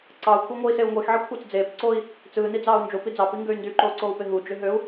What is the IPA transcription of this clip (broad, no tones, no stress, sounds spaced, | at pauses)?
ǀ ɑ u̯ kʷʰ ɑ ŋʷ ɯ i̯ s e u̯ ŋʷ e x ʕ i kʷʰ ɑ t͡s d͡z eː p ǀ oː i̯ | t͡s ɯː n i d͡z ɑː u̯ n d͡ʒ o p i d͡z ɑ p i ŋ ɡ ø y̯ n d y ǃ oː ǀ oː u̯ p e ɦ u d͡ʒ ø ɦ ø u̯